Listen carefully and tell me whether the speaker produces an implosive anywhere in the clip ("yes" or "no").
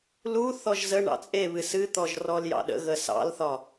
yes